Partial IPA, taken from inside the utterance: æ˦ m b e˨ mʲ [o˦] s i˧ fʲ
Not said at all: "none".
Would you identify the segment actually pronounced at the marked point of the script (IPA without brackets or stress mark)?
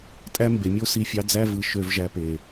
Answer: o˦